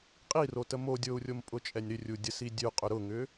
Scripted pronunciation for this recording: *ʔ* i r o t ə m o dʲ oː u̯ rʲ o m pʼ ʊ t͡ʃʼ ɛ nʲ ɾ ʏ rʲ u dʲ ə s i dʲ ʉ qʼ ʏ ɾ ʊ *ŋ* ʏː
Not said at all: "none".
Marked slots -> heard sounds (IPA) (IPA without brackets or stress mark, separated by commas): qʼ, ŋ